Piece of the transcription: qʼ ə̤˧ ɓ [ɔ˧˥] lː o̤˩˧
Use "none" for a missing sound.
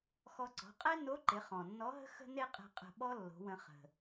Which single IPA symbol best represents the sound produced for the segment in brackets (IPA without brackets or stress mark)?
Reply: ɔ˥